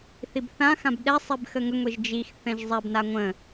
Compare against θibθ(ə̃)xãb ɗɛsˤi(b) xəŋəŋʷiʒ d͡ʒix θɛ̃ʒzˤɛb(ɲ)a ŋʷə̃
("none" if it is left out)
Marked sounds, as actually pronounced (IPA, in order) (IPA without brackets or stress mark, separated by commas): ã, b, n